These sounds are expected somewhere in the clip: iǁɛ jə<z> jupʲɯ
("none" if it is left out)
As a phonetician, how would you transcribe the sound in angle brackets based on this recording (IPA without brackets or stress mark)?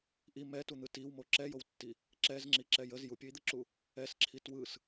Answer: z